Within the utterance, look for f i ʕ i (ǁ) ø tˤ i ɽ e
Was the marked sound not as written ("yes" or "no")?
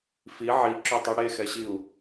no